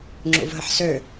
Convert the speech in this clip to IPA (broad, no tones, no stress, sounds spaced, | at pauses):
ŋ͡ǁ ṵ v ɦ ə ħ s ø